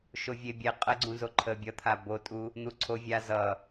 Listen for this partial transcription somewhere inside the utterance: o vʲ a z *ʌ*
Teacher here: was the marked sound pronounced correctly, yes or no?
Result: yes